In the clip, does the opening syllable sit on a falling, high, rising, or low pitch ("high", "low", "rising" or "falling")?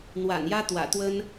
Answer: low